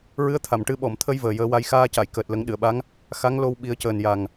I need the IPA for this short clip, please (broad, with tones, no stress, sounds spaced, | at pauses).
ɹ ɨ˧˥ ə̯ t̪ʰ a˨˩˨ m ʈ ɨ˧ ɓ ɔ˨˩˨ m t̪ʰ ə˧ j v əː˨˩ j əː˧˥ w a˧˥ j x aː˧ c a˨˩˨ j k əː˨˩ t̚ l ə˨˩˦ ŋ ɗ ɨ˨˩˨ ə̯ ɓ a˧˥ ŋ | x a˧˥ ŋ l o˧ w ɓ i˨˩˦ ə̯ c əː˨˩ n j a˨˩ ŋ